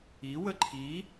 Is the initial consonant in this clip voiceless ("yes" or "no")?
no